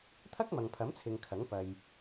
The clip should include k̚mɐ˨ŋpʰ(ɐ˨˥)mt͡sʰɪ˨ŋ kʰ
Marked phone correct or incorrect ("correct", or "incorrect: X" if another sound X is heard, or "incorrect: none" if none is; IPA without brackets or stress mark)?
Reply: correct